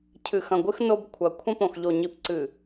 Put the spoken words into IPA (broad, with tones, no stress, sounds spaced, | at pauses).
cʰ ɨ˨ x ɐ̃˨ ɡʷ ɨ˦ x n o˦ b kʷʰ ɐ˨ kʷʰ ɐ̃˦ p õ˨ x ʎ o˨ ɲ i˨ p ǀ ɨ˨